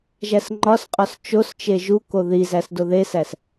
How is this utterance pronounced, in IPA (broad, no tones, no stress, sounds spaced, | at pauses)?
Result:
ʒ æ s ŋ͡ǃ ɒ s qʼ ɒ s t͡ʃ o s t͡ʃ e ʒ u k o ð i z æ s d o ð e s æ s